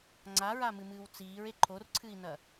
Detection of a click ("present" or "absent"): present